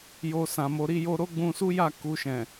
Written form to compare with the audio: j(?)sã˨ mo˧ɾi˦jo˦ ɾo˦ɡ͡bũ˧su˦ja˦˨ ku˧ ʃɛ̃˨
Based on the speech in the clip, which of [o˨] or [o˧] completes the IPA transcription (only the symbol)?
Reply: o˧